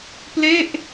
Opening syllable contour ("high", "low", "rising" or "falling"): falling